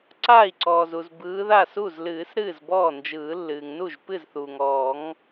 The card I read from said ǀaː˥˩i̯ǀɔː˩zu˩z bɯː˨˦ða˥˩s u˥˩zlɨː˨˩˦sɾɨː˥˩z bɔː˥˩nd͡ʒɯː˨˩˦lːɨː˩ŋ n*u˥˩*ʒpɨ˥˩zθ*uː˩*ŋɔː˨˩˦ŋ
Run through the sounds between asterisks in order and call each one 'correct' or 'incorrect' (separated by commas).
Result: correct, correct